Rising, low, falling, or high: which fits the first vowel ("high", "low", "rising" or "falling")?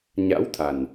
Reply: rising